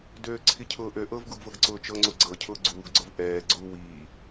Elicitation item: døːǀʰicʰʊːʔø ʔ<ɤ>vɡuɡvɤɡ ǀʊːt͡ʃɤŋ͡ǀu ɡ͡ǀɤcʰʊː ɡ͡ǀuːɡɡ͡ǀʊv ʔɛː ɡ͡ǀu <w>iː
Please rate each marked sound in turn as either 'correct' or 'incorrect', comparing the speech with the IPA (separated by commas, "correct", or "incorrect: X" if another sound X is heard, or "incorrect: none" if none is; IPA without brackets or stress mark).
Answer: correct, correct